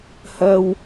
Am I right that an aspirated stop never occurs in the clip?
yes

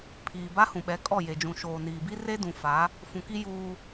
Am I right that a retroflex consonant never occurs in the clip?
yes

